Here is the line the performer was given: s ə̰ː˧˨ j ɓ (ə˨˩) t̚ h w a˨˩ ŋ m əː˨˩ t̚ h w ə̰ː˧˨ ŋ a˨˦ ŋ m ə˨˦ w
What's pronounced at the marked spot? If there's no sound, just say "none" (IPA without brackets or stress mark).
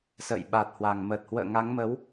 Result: a˨˩